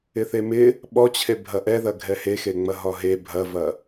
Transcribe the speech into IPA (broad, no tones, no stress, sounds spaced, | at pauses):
ɪ θ e m ɪ | ɓ ɔ t͡ɕʰ e bʱ ɐ ʔ ɛ ð ɐ ɡʱ ɛ h e x e ŋ͡m ɐ ɦ ɒ ɦ e bʱ ɐ v ɐ